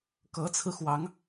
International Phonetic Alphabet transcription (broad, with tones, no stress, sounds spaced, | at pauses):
k ɤ˧˥ t͡sʰ ɹ̩˧ x w ɑ˧˥ ŋ